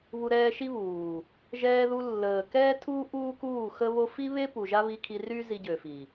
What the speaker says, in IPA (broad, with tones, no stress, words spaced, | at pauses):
βu˧ɾɛː˧ʃi˦βuː˨ | ʒɛː˧ðu˧ lːəː˨ kɛː˦tʰuː˦ ʔuː˦kuː˦˨xə˦βo˦ fi˦βe˦ pu˨ʒa˦βi˧kʰi˧ ry˦ zi˧ɟø˨fi˨